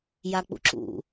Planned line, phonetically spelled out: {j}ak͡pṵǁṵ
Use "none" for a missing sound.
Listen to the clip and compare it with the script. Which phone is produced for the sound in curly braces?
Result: j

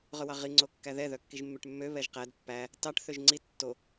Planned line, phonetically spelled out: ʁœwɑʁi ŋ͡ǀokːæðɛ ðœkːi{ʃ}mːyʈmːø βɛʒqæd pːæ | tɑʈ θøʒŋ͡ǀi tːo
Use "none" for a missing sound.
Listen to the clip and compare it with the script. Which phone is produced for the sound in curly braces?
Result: ʒ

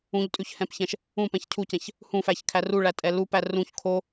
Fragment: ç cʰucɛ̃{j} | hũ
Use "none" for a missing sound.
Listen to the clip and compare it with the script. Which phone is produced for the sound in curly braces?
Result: ç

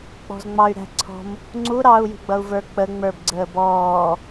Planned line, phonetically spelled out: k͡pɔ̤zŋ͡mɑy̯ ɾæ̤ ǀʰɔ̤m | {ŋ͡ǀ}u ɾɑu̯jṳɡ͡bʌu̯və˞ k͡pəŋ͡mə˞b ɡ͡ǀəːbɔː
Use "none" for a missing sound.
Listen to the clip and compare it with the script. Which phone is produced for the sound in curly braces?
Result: ŋ͡ǀ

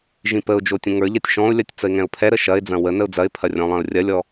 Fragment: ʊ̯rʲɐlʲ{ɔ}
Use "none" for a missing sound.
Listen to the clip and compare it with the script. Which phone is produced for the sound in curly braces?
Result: ɔ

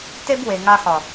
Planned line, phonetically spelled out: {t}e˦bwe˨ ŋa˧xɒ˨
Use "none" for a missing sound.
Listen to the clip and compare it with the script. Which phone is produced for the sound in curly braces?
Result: t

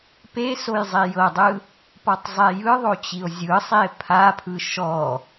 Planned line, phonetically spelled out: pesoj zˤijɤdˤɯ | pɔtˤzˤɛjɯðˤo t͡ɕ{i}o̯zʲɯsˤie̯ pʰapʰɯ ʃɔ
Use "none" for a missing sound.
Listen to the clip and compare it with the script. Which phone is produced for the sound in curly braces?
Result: i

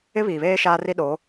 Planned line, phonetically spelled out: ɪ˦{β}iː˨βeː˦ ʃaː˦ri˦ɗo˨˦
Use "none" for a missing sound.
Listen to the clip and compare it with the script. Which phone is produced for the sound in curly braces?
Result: β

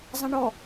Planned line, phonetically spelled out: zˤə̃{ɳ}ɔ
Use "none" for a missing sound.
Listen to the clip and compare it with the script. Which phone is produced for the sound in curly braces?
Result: ɳ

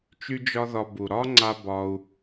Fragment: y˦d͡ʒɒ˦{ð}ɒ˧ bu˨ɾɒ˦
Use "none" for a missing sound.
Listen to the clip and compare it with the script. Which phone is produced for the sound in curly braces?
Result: ð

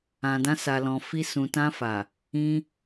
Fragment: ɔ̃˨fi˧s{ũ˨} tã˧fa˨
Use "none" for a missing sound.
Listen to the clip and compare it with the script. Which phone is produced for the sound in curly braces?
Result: ũ˨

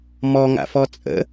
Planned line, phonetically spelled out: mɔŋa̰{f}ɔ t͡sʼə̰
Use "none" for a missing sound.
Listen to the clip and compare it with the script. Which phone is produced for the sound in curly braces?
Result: f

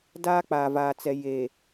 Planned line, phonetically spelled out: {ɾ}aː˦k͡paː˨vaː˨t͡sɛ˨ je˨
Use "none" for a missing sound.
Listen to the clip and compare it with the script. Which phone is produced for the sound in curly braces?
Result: d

